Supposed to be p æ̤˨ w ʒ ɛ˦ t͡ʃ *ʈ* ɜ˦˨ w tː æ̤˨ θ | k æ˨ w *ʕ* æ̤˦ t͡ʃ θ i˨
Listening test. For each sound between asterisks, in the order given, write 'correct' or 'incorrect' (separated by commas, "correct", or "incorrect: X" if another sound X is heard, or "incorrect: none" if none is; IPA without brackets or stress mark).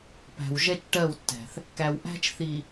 correct, incorrect: ʔ